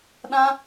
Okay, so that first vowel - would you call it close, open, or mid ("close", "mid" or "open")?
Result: open